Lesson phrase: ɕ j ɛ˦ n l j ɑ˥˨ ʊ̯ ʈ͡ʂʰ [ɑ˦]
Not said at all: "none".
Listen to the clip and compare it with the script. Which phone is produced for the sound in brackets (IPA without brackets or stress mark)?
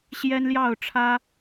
ä˦